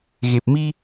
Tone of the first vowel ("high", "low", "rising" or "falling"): low